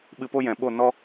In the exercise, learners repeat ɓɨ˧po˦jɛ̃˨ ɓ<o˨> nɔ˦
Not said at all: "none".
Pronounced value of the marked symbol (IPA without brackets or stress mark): o˦˨